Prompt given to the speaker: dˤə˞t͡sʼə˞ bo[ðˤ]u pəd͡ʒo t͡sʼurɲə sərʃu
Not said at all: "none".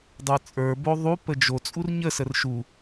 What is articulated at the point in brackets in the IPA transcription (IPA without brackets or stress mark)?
ðˤ